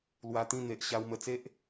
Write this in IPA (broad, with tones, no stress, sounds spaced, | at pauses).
l w a˧ t̪ ĩ˥˧ n̪ e˨ ʔ ɕ a˧ w m ə˧ t͡s e˦ ʔ